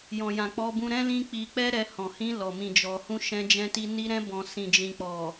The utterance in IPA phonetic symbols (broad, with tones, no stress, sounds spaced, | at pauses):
j ɔ̃˨ j ã˨ k͡p ɔ˧ b ũ˧ ɾ ɛ̃˦ l ĩ˦ k͡p i˧ k͡p ɛ˦ ɾ ɛ˧ h ɔ̃˨ h ĩ˧ l ɔ˨ m ĩ˨ d͡ʒ ɔ˨ h ũ˧ ʃ ɛ̃˧ d͡ʒ ɛ̃˧ t i˧ n i˧ ɾ ɛ̃˧ b ɔ̃˨ s ĩ˨ d͡ʒ ĩ˨ k͡p ɔ˨